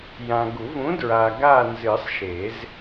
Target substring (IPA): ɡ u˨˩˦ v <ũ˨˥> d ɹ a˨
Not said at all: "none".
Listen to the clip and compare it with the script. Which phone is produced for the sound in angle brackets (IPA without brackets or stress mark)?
ũ˨˥